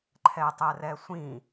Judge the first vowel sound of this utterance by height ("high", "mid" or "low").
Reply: mid